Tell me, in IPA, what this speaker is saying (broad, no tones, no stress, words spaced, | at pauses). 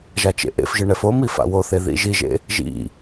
ʒat͡ʃḛʔḛfʒɯ ɳɛfomi fa̰woθe ðḭʒiʒḛ | ʒḭ